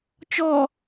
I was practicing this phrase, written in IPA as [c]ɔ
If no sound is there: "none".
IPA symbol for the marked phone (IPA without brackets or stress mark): t͡ʃ